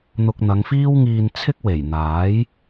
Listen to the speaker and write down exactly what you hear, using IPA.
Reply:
n̪ʊ˧k̚n̪ɐ˨˧ŋfiː˥w ŋiː˧nt͡sʰɪ˥k̚ we˨˩jn̪aː˨˥j

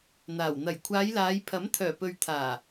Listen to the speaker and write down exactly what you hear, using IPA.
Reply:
n̪aː˨˩w n̪ɐ˨˩jkʷʰaː˨˧jlaː˨˧jpʰɐ˨˥m t̪ʰœː˨˩pɵ˨ɥt̪ʰaː˨˩

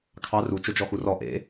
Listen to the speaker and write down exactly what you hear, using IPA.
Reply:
kʰɑ ru t͡ʃod͡ʒɔxurɔ ʔḛ

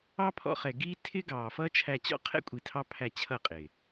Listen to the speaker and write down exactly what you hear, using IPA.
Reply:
ɑ˦pʰɔ̰˧χɛ˨ɡiː˦ tʰɪ˦ɡɑː˨ fʌː˦t͡ʃʰæ˧t͡ɕɔ̰˦qʰɛ̰˦ kʷʼi˧tʰɑ˦pʰæ˦˨ t͡ɕʰʌ˦˨qʼɪː˨

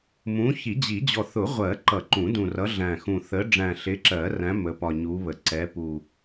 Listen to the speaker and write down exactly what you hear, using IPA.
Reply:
mũ˨˦ çi˨˩˦ d͡ʑi˨˩˦ d͡ʑɔ˨˩θʊ˨˩˦ʁʷɜ˨˩˦ ǃʌ˨˩˦ǃũ˨˩˦dũ˨˩rʌ˨˦ ɮæ̃˨˩ xũ˨˩θə˨˦ ɖ͡ʐæ̃˨˩ɬɪ˨˦ǁɜ˨˩˦ræ̃˨˦ mə˨˦pɒ˨˩ɲu˨˦ βə˨˩ ǀɛ˨˦pu˨˩

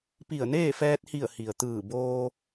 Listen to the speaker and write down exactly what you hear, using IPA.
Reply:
pi˧˩ə̯neː˥˨ fɛː˧t̚hi˧˩ə̯ hi˩ə̯t̪ɯː˧˩boː˧

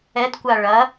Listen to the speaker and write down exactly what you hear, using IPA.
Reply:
ɛdkʷa ɭɐ

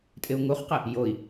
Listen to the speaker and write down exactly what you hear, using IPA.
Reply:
tʼɪu̯ŋuχqɪ | joi̯

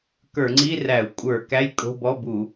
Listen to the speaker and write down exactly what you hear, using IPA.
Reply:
kə˞˧˩˧ŋ͡ǀi˧˥˧ræ˧˩˧u̯ kʷʼə˞˧˩˧ kæ˧˥˧jkʼo̤˧˥˧bɔ˧˥˧bu˧˩˧

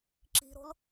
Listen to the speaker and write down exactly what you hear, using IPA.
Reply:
ǁi̤ɾo̤l

